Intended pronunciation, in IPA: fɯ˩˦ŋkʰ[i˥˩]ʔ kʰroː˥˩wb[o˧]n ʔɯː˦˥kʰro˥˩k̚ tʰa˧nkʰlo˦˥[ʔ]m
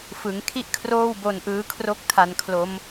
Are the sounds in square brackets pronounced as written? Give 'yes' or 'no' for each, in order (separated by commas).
yes, yes, no